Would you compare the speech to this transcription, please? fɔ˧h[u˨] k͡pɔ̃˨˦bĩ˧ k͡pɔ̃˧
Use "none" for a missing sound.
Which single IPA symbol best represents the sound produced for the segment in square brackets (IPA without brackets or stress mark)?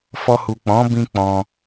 u˨